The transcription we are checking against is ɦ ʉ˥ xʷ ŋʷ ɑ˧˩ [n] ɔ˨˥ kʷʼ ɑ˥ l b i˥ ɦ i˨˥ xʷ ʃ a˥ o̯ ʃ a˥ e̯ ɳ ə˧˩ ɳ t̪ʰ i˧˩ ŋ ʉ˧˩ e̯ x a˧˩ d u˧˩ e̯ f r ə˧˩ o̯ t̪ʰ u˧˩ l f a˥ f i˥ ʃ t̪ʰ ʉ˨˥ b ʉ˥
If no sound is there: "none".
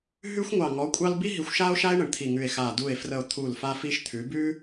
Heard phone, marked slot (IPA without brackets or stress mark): ŋ